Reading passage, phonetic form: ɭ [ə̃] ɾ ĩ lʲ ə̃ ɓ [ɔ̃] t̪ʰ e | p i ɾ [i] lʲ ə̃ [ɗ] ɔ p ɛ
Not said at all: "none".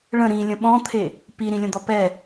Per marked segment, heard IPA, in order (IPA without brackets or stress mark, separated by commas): ə̃, ɔ̃, ĩ, d̪